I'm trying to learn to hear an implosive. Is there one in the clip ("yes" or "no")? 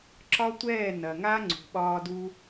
yes